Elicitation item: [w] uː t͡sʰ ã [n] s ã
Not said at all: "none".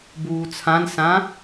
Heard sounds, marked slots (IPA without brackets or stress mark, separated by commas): b, n